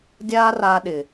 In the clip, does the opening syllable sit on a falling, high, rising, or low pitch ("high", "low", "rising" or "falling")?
high